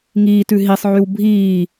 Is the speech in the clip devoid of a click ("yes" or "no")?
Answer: yes